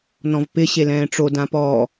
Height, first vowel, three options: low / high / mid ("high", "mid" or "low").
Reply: mid